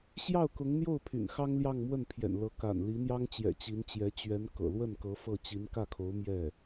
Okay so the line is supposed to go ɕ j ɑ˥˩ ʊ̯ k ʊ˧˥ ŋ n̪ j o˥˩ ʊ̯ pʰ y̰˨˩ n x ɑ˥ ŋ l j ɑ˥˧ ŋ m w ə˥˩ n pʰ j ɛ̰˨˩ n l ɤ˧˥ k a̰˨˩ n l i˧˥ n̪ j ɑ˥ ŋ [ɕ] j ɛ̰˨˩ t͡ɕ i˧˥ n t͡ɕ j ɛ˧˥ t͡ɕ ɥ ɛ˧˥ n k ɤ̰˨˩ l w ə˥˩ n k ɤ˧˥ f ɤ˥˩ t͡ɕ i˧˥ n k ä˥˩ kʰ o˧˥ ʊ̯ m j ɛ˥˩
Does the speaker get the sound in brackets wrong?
yes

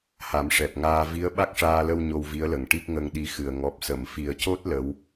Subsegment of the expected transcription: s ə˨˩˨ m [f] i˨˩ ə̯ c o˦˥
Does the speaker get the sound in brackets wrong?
no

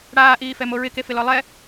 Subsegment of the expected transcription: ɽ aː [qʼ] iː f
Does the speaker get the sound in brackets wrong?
yes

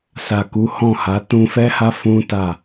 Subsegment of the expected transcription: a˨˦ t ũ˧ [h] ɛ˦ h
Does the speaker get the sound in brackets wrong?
yes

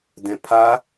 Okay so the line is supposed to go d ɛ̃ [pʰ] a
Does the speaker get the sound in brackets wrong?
no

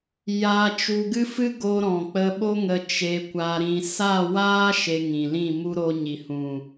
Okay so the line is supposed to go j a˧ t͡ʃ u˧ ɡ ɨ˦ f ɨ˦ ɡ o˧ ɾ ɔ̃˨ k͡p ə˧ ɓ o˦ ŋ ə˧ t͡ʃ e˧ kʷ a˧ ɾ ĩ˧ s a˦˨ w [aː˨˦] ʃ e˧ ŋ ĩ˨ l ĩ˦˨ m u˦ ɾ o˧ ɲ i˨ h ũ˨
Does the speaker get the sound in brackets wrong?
yes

